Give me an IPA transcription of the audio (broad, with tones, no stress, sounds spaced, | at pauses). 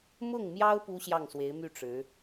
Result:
m ʊ˥˩ ŋ m j ɑ˥ ʊ̯ p u˥ ɕ j ɑ˥˩ ŋ s w e˧˥ ɪ̯ m y˥˩ ʈ͡ʂ ɻ̩˧˥